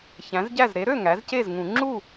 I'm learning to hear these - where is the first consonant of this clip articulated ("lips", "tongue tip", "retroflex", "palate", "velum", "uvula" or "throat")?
palate